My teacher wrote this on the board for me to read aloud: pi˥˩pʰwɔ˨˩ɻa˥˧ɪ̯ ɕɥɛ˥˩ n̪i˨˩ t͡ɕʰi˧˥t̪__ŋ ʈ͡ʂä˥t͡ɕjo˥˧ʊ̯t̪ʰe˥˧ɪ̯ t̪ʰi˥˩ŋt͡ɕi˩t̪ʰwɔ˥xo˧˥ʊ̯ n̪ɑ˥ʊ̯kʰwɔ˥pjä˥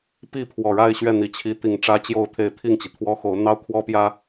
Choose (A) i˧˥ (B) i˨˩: B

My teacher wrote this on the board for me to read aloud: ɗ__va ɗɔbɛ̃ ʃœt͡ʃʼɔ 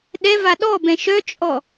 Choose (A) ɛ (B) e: A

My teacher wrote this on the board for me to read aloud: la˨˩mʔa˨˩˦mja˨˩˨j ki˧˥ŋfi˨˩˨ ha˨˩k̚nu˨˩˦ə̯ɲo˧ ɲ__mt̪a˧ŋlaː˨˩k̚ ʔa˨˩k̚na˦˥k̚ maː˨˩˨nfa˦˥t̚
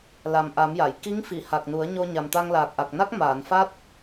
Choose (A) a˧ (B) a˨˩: B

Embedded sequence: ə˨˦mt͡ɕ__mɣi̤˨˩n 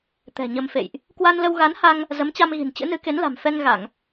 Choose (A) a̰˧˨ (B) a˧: B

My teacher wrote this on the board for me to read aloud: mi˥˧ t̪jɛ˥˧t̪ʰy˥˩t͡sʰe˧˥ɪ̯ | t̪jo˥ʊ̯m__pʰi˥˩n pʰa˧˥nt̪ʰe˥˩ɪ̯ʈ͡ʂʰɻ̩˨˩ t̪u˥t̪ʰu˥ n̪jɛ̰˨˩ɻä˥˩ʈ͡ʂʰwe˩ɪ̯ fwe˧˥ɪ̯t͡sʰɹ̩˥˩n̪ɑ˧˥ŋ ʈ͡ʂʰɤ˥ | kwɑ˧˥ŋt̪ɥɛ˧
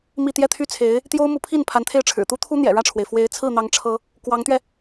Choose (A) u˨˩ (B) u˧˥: B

